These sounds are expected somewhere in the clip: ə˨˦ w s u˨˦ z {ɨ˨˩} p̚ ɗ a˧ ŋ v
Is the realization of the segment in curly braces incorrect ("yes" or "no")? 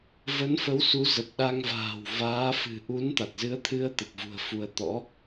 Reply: yes